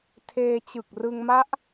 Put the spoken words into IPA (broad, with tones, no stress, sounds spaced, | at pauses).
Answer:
tʰ eː˧ t͡ɕ ɯ˨˩ k̚ r ɯ˧ ŋ m a˦˥ ʔ